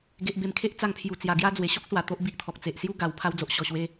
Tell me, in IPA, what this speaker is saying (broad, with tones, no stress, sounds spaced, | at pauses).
ɡ e˨ ʔ b e˨˩ m kʰ e˦ ʔ t͡s a˧ ŋ pʰ j u˨˩ t͡s j a˨˩ ɡ j a˦ d͡z w e˨˩ ɕ o˦ k̚ s w a˨˩ t̪ o˦ ʔ b i˦ ʔ t̪ʰ ɔ˨ k̚ t͡s e˨ ʔ s j u˦ ɡ a˨˩ w pʰ a˧ w d͡z o˨ ʔ ɕ ɔ˨˩ ɕ w e˧